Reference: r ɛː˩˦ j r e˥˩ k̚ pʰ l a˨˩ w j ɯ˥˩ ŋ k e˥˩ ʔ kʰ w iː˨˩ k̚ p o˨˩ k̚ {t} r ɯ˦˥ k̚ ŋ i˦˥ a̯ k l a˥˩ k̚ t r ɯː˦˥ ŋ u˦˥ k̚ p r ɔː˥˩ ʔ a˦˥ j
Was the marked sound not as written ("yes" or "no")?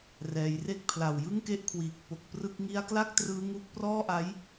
yes